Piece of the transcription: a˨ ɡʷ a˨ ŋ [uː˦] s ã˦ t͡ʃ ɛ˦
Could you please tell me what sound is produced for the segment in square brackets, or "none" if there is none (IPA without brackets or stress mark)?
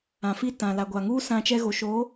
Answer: uː˦